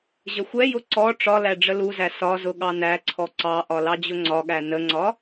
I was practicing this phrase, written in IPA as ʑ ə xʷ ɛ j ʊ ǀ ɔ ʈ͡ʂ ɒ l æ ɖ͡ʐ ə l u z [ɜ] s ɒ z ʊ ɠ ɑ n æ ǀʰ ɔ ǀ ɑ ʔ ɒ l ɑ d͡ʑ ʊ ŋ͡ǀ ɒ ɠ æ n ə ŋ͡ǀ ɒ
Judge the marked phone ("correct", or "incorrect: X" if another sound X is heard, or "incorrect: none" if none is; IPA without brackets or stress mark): incorrect: æ